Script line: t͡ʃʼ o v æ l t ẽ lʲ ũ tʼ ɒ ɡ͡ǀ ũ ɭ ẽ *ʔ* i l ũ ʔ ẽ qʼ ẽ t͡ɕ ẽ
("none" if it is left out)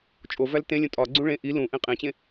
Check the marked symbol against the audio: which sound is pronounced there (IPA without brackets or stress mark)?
ʔ